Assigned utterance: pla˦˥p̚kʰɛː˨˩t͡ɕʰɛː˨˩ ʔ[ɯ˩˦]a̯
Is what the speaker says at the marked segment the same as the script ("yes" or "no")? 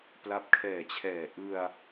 no